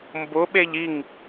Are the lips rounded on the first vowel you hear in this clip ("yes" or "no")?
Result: yes